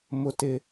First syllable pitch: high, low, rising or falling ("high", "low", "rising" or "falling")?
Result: high